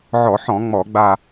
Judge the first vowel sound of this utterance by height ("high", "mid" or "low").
mid